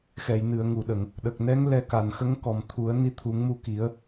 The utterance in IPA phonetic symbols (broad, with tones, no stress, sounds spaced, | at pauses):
x ɛ˨˩˨ j n ɨ˨˩˨ ə̯ ŋ u˨˩˨ ɗ ə˨˩˨ ŋ | ɗ ə˨˩ k̚ n ɛ˧˥ ŋ l ɛ˧ k a˨˩˨ n x ə˧˥ ŋ k ɔ˨˩ m t̪ʰ u˨˩˦ ə̯ n i˧˥ t̪ʰ u˨˩˦ ŋ m u˧ k i˨˩˦ ə̯